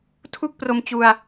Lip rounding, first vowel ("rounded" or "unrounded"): rounded